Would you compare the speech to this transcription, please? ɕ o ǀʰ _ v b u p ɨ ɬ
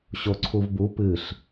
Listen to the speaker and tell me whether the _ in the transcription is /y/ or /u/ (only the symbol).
u